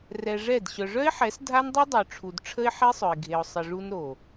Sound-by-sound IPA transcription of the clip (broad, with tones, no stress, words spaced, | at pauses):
rɛ˧ʐɛ˦˨d ɕœ˨ʐœ˦ɪ̯ħɛ˨˦s dʱa˦ndˤu˦dˤœ˨ʈ͡ʂʰu˨d ʈ͡ʂʰə˦ɪ̯ħe˦sˤœ˨ɪ̯ ɡʱe˨ʊ̯ sˤə˨ʐu˧n ɾo˨